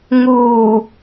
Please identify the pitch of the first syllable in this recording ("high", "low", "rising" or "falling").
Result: low